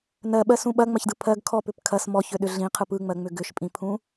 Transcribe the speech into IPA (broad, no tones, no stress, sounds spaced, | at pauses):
n ɜ ɓ ɜ s ũ ɓ ɐ ŋ͡m ɐ ç d ɯ pʰ ɜ ɡ kʰ ɔ p ʏ p kʰ ɐ s m ɔ ç ʏ ɗ ʏ ɮ ĩ qʰ ɯ p ɯ ŋ͡m ɜ ŋ͡m ʏ ɡ ʏ ʃ pʼ ĩ pʰ ũ